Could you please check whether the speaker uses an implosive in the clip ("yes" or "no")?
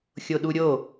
yes